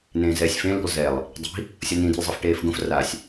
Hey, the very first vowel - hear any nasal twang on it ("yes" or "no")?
yes